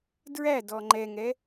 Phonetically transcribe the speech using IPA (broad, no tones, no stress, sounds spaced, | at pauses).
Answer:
d ɹ æ d ɔ ŋ͡ǃ ɛ ŋ ɛ